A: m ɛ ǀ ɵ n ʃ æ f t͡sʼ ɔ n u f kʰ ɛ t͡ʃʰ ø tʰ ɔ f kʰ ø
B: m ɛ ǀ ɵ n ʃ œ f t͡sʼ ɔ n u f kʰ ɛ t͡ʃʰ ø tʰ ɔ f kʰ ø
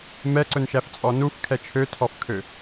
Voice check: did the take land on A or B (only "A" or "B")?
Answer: A